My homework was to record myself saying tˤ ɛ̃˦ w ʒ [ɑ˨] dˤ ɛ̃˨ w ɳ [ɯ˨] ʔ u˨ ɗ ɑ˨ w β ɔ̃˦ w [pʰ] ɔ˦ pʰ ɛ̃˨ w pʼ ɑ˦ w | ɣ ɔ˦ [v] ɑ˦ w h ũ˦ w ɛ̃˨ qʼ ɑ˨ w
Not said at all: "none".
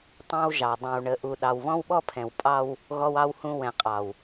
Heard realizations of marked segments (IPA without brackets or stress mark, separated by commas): ɑ˨, ə˨, ɓ, w